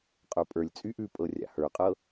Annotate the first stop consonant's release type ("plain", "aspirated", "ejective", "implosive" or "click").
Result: ejective